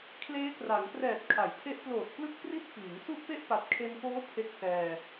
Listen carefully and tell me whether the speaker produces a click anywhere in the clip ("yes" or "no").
no